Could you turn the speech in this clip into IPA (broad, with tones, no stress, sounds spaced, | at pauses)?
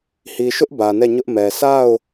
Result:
h i˨ ʃ ʊ˦ ʔ b ä˨ n ɛ˦˨ ɲ ʊ˦ ʔ m ɛ˨ s a˦˨ ʊ̯